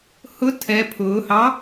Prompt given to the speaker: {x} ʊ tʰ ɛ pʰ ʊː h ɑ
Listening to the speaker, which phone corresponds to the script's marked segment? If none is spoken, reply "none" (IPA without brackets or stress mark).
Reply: h